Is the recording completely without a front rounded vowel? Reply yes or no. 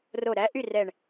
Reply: no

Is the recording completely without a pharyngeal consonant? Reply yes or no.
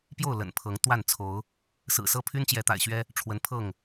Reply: yes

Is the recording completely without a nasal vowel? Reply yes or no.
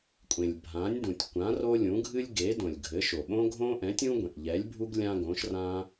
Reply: no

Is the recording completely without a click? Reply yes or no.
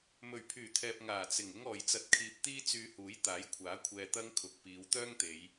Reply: yes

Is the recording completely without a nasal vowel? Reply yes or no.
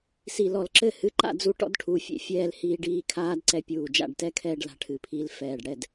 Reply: yes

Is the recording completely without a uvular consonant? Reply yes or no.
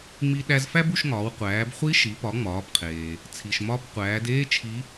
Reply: no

